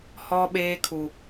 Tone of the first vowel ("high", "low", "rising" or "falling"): high